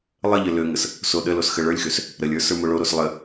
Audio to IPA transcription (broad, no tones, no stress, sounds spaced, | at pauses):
lˠ ə ʎ ə l ø ŋ ə s | s o ɗ ə l o s x ə ɭ ə˞ lʲ x ø s | ɾ ə lʲ ə˞ s ə˞ m o ɭ o ɾ o s lˠ ə